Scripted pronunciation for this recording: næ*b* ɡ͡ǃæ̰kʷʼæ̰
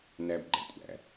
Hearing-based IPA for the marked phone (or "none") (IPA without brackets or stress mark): b